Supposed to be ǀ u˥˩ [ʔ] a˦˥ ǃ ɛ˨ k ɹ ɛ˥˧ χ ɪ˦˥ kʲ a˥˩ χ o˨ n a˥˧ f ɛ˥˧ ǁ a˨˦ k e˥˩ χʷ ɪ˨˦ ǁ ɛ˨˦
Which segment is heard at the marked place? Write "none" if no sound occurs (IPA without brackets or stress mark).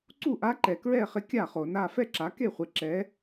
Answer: ʔ